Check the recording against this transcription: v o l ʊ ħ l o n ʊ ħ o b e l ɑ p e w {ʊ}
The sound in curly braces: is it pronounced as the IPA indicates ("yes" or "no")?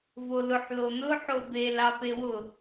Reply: yes